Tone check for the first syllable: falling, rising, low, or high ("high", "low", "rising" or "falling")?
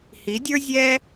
rising